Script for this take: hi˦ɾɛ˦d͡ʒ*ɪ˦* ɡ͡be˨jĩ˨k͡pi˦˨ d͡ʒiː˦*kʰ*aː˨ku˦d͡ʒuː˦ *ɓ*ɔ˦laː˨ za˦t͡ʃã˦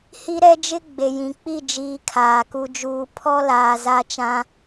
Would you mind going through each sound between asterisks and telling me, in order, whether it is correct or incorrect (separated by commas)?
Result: correct, correct, incorrect